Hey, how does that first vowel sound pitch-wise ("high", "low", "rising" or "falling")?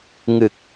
low